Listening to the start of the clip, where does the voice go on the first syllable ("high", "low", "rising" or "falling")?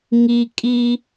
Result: high